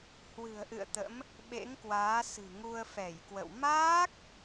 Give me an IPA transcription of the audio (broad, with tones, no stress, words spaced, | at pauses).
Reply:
hwɨ̤˨˩ə̯ʔɨ̰˧˨ə̯ t̪ə̰˧˥m | ɓḛ˧˥ŋkwaː˨˦sɨ̤˨˩ŋu˧ə̯ fɛ˧˩jkwə̰˧˨w maː˦˥k̚